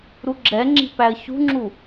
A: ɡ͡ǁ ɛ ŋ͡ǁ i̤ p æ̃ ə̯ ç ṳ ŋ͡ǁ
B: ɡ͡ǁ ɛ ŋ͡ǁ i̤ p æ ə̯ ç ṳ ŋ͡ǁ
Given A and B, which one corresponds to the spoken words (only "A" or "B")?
B